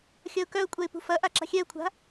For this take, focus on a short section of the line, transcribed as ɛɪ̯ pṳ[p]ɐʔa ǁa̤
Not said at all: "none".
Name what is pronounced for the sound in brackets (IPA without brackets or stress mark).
f